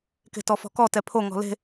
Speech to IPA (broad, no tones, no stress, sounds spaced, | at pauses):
k e̤ t ɔ f ɔ̤ k ɔ t ɛ pʰ o ŋ ɔ̤ l e̤